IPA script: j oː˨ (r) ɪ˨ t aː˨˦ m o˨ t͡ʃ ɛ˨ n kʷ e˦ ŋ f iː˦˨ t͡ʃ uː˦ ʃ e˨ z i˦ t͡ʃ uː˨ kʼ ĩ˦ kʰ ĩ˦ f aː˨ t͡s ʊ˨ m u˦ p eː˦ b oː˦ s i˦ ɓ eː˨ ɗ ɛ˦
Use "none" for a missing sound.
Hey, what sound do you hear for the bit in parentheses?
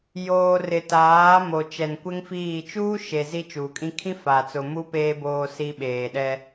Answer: r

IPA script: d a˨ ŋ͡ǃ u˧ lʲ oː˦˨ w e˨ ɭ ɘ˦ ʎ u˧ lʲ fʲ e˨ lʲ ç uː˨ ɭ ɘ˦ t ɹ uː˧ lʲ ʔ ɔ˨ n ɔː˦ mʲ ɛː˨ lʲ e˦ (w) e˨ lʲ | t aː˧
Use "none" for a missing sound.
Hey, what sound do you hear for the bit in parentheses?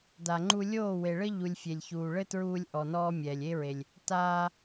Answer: ɹ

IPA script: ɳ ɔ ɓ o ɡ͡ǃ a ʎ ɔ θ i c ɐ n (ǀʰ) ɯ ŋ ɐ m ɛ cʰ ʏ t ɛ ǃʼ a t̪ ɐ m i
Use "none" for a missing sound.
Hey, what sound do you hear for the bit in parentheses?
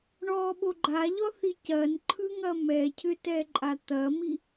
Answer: ǃʰ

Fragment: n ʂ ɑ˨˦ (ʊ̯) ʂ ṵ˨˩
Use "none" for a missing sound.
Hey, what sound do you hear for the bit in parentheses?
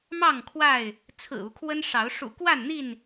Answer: ʊ̯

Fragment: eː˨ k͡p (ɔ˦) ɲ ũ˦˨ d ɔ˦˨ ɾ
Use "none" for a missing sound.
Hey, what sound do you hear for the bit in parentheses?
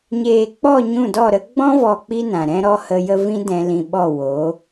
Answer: ɔ˦˨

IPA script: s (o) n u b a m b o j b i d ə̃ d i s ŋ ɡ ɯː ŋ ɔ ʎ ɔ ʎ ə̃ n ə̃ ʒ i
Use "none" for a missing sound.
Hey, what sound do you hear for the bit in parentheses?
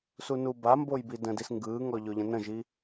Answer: u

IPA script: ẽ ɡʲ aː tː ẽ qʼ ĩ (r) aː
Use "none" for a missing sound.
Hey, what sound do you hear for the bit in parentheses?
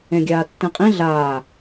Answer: ɮ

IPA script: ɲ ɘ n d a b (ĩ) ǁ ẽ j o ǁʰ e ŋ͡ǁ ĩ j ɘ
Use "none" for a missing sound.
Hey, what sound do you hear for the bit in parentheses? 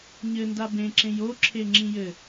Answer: ẽ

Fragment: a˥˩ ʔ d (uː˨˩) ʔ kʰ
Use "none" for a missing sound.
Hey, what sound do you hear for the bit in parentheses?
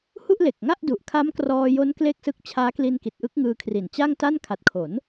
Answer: u˨˩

